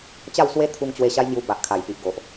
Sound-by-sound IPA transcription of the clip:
t͡ɕ a˥˧ w s w e˦ t̪ʰ u˧ ŋ t͡ɕ w e˧ ɕ a˦ j ŋ j u˧ b a˨ ʔ kʰ a˨˩ j p i˨ ʔ ɡ o˨ ʔ

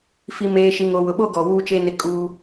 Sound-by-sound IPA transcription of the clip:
f i˨ m eː˨ ʃ i˨ ŋ o˨ w ʊ˨ ɓ o˦ ɡ ɔ˨ w uː˦ t͡ʃ e˦ n ɪ˦ kʼ u˦

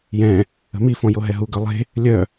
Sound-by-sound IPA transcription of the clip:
j ɛ̃ | ə̤ m i f ɔ̃ j o ɦ ɛ ɦ u ɡ œ lˠ e̤ | lʲ œ

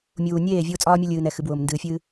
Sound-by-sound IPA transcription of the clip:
mʲ uː˨ nʲ eː˦˨ vʲ ʊː˦ t͡sʼ ɒː˦ mʲ o˦ lʲ ɨː˨ n ɛ˨ x ɨ˨ b w ʊː˨ m n d ɨː˨ fʲ ɨː˦

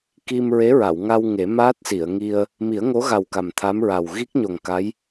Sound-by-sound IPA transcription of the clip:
k i˧ m ɹ e˧˥ ɹ a˨˩˨ w ŋ a˧ w ŋ e˨˩˦ m aː˦˥ t̚ s i˨˩˨ ə̯ ŋ i˧ ə̯ | m i˨˩˦ ə̯ ŋ o˧˥ ɣ a˨˩ w k a˨˩ m t̪ʰ a˧˥ m ɹ a˨˩ w ɣ i˦˥ k̚ ɲ o˨˩ ŋ k a˧˥ j

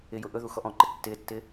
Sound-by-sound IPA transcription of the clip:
ɪ j ʊ ʔ ɵ ð u x ɔ ʔ ɔ̃ ǃ ɪ tː ɪː tː ɪː

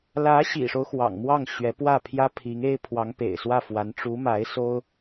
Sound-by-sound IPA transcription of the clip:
l ä˧˥ ɕ ḭ˨˩ ʂ o˦ ʊ̯ x w ɑ̰˨˩ ŋ m w ɑ˥˩ ŋ ɕ ɥ ɛ˧˥ p w ä˥˩ pʰ j ä˥ pʰ i˧˥ ŋ e˥ ɪ̯ pʰ w ɑ˧˥ ŋ p ḛ˨˩ ɪ̯ s w ä˥˩ f w a˧˥ n ʈ͡ʂ u˧˥ m a˧˥ ɪ̯ s o˥ ʊ̯

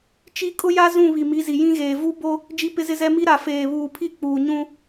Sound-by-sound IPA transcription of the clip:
t͡ʃ i˦ kʼ ʊ˦ j a˦ z ũ˦˨ β i˨ m i˨˦ z i˨ j ĩ˦ ɣ eː˨ v u˦ b o˦ | d͡ʒ i˦ p ɪ˦ z ɪ˦ z ɛ˦ m i˦ ɾ a˨ f eː˨ β uː˨ pʰ i˦ k͡p uː˨ ɲ ũ˦

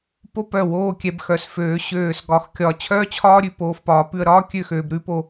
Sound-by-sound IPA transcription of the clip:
p o˥ p œ˧˩ w oː˥˧ kʲ ɛ˧ b x œ˩˧ s f øː˩˧ ɕ øː˧˩ s ɡ ɒ˧ x kʲ ɒ˧˩ t͡ɕʰ œː˥ t͡ɕʰ ɒː˥ ɾʲ ʉ˧˩ p oː˧ f p ɒː˩˧ p ʉ˧ ə̯ ɾ ɒː˥ kʲ ø˥˧ x øː˧ b ɾ ʉ˥ p o˧

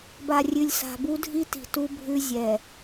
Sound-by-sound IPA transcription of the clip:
b a˨ rʲ ʉ˨ lʲ s a̤˨ b u˦ dʱ i˦ t i̤˨ t u˦ bʱ ʉ˦ zʲ ɛ˨

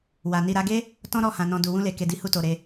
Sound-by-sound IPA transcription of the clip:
w a˨ n i˨ ɾ a˧ ɡ e˦ | t ɔ̃˦ ɾ ɔ˦˨ h ã˨ n ɔ̃˨ d u˨ w ũ˧ l e˨ k e˨ d i˨˦ h u˧ t o˨ ɾ e˧

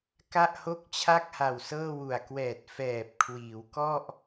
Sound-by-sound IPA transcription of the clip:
k a˥˩ ʔ h o˥˩ k̚ t͡ɕʰ a˥˩ k̚ h a˨˩ w s ɤː˥˩ w u˨˩ a̯ k w ɛː˨˩ t̚ f ɛː˨˩ p̚ kʰ w iː˩˦ w k ɔ˥˩ ʔ

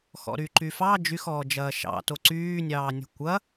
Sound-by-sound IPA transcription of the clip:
x ɔ̰ ɾ y ǃ y f ɑ d͡ʒ y x ɔː d͡ʒ ɐː ʃ ɑ̰ t o ǀ yː nʲ ɑː nʲ ɔ̤ kʷ ɐ

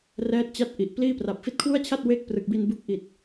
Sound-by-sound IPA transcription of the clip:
r ɛː˦˥ t̚ t͡ɕ a˦˥ t̚ ʔ i˨˩ ʔ p l iː˥˩ p r a˨˩ p̚ f i˦˥ t̚ kʰ w u˥˩ a̯ t͡ɕʰ a˥˩ t̚ w e˥˩ k̚ p r ɯ˨˩ k̚ b i˧ n b u˦˥ k̚ ʔ i˨˩ t̚

